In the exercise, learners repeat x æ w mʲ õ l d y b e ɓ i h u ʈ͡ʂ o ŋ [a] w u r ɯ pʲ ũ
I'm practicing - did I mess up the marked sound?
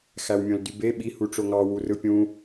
yes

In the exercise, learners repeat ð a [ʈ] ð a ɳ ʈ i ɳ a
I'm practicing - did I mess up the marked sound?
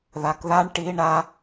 yes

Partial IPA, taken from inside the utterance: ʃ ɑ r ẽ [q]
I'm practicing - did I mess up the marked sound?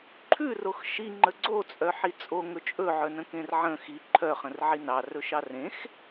yes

